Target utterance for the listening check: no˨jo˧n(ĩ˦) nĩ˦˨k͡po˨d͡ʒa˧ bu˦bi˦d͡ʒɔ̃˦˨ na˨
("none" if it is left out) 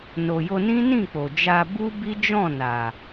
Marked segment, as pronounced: ĩ˦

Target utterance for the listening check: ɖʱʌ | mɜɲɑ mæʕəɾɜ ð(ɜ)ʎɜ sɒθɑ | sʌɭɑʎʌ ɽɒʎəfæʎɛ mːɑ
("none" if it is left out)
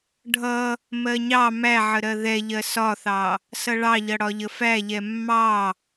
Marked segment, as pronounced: ɛ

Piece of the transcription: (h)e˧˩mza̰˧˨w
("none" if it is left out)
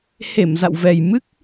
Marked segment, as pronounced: h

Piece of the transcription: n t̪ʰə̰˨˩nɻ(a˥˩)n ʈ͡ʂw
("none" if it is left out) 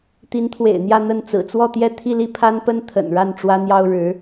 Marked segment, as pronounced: a˥˩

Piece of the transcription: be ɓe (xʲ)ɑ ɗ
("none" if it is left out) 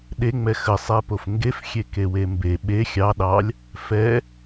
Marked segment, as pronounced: xʲ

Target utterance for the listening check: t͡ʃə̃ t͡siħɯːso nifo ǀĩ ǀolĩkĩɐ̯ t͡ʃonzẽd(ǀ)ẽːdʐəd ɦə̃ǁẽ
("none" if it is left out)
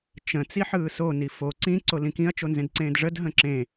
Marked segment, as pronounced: ǀ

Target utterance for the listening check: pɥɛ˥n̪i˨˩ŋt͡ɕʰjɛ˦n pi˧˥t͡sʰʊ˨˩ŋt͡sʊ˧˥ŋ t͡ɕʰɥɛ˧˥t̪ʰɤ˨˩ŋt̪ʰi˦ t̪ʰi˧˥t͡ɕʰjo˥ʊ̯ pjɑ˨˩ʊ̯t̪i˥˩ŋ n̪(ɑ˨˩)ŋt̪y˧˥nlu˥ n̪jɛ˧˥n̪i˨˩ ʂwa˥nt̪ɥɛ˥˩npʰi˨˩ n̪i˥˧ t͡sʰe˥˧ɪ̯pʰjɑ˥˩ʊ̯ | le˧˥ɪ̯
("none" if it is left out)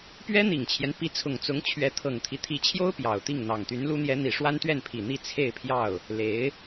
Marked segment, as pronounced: ɑ˨˩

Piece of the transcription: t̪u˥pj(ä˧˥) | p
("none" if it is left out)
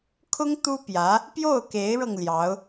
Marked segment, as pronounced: ä˧˥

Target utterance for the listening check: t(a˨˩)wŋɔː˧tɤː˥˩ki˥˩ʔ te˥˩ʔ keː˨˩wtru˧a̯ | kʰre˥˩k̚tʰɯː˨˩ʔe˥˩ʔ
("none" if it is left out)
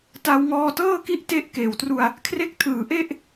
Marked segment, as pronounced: a˧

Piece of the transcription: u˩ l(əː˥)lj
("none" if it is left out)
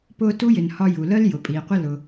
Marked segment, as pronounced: əː˥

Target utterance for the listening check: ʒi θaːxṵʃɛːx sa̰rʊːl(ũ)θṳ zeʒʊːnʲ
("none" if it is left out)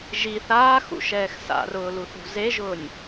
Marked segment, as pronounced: u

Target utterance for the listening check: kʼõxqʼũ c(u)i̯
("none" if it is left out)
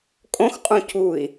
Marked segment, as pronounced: u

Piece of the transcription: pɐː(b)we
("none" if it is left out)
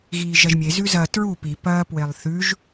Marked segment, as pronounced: p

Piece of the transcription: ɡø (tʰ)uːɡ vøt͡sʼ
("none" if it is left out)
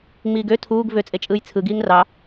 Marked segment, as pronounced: tʰ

